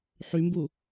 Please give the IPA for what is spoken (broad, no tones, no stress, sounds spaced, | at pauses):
ħ y m b u